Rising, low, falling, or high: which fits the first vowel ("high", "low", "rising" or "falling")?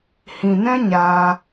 low